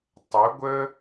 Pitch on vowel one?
rising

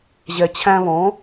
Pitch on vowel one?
low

